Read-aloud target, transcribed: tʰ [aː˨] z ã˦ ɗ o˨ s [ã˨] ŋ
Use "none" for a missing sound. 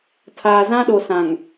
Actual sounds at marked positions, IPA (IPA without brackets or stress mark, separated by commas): aː˨, ã˨